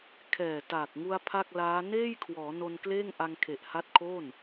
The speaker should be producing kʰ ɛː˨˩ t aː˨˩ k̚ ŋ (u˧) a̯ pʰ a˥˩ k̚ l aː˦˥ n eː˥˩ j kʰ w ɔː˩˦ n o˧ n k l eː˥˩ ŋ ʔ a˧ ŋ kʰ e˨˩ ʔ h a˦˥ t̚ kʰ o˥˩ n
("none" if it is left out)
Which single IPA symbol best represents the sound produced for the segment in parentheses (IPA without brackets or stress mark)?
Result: u˧